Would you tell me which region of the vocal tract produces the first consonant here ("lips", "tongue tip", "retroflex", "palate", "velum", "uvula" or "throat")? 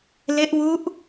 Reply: tongue tip